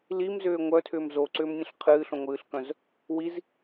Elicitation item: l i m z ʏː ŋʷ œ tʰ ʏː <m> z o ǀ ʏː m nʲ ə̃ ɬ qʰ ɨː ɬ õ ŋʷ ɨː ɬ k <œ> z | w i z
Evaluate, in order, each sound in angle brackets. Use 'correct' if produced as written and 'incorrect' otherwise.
correct, incorrect

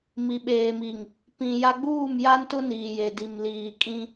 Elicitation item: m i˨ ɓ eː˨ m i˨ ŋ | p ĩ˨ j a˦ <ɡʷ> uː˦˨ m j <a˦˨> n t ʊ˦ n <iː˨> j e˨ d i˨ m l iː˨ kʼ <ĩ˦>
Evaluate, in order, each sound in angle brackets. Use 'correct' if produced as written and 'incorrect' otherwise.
incorrect, incorrect, correct, correct

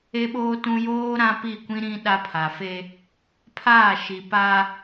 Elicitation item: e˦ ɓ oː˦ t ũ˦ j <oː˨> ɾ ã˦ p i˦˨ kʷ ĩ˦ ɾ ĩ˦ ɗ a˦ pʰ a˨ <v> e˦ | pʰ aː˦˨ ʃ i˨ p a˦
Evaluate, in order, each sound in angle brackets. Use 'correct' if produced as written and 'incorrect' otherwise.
incorrect, incorrect

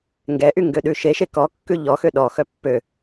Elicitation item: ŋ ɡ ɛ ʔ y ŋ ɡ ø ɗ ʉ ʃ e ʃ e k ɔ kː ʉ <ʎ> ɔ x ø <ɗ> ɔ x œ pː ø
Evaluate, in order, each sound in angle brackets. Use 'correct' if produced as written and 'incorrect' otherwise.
correct, correct

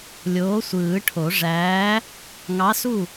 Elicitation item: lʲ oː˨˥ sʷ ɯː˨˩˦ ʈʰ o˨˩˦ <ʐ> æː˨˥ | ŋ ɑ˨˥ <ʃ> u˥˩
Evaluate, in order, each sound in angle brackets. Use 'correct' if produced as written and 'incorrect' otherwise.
correct, incorrect

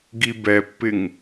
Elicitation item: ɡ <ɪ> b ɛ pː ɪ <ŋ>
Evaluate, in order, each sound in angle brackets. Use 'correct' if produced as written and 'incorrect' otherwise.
incorrect, correct

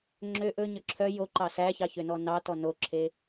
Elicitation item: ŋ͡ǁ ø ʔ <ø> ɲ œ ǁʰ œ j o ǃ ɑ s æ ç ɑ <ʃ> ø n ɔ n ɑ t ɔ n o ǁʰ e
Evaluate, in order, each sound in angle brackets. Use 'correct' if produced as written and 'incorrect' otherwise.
incorrect, incorrect

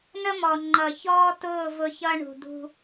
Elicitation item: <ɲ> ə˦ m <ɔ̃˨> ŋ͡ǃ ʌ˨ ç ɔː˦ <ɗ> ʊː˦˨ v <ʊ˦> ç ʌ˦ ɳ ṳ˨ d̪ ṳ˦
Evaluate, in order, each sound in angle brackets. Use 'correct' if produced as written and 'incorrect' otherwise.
incorrect, incorrect, incorrect, correct

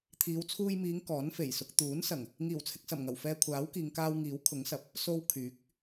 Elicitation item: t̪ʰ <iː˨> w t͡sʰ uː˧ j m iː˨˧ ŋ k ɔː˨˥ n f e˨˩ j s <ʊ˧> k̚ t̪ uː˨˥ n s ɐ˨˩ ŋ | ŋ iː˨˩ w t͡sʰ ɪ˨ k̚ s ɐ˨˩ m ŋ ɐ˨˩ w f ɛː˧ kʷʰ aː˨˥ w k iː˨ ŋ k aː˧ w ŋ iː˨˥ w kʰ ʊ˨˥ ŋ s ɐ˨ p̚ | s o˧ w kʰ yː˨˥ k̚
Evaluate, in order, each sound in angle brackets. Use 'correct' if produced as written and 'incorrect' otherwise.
incorrect, correct

